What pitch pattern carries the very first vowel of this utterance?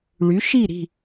rising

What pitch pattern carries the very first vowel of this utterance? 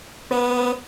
high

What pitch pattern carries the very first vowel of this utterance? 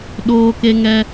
high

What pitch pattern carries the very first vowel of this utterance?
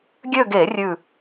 falling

